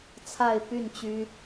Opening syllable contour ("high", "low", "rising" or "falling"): falling